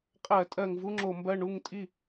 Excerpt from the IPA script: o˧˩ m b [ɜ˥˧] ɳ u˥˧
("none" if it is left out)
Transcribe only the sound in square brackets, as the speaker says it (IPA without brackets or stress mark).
ɜ˥˧